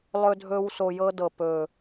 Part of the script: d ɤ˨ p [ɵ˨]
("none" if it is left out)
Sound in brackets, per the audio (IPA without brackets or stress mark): ɵ˨